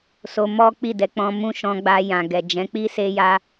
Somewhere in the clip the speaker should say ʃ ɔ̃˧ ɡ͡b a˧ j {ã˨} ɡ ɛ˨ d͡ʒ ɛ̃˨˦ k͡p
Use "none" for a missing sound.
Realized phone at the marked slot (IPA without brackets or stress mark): ã˨